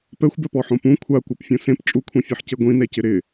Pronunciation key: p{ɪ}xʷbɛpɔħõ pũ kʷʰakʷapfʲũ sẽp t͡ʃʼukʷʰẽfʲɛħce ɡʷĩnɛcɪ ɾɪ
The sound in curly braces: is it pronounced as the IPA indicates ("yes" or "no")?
no